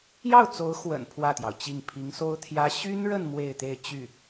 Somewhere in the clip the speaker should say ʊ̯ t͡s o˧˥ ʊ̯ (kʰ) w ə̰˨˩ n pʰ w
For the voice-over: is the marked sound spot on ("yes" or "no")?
no